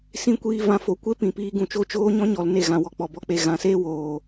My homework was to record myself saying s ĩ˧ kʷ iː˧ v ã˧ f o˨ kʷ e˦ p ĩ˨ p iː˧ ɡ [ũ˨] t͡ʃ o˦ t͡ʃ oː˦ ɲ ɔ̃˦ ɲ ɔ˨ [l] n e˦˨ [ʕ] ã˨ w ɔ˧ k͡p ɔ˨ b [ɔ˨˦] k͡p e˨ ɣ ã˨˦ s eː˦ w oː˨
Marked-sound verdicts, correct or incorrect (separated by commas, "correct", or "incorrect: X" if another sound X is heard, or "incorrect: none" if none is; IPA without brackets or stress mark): correct, correct, incorrect: ɣ, incorrect: ɔ˧